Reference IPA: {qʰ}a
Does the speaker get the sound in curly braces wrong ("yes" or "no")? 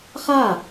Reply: yes